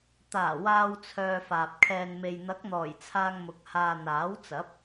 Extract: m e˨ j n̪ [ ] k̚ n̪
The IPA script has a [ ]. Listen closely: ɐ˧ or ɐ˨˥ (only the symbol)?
ɐ˨˥